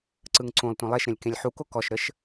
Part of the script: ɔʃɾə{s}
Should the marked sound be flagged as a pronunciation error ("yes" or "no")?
yes